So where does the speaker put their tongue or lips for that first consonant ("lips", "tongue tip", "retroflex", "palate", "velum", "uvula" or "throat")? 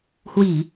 throat